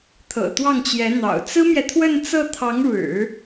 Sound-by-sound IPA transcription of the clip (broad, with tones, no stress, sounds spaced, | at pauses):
t̪ʰ ɤ̰˨˩ t̪ w ɑ˥˩ ŋ t͡ɕ j ɛ˧˥ n̪ ɑ̰˨˩ ʊ̯ t͡s ɹ̩˥ m j ɛ˨ t̪ʰ w ə˥˧ n t͡s ɤ˥˩ t̪ʰ ɑ˧˥ ŋ ɻ ɻ̩˨˩˦